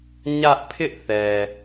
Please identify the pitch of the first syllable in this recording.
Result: high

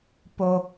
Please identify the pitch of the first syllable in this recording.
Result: high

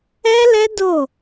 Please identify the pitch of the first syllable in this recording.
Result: high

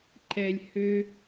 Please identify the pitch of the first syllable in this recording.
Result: low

